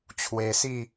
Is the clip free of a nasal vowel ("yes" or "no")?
yes